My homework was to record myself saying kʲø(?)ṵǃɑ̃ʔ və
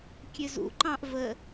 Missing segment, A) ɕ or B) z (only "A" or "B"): B